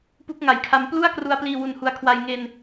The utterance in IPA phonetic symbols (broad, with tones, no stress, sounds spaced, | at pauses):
p u˦˥ k̚ ŋ a˨˩ j kʰ a˧ m p l u˥˩ a̯ k r u˧ a̯ p l iː˧ w u˧ n h u˧ a̯ kʰ w a˧ j ŋ e˧ n